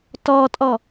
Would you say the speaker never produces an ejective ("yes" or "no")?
no